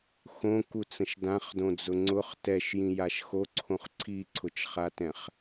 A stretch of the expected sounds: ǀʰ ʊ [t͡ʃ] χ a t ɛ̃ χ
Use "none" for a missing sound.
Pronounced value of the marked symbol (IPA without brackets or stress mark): t͡ʃ